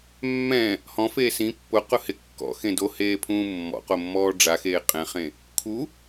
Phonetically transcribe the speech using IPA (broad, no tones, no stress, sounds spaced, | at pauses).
mː ɛ̃ | h ɔ̃ f eː s ĩ pː ʊ q ʊ h ɪ kː ɔ̰ x ẽ d o h eː pʰ ũː mː ɔ̰ q o mː ɔː ɖ͡ʐ a x eː qʼ ɛ̃ χ ẽ | kʰ u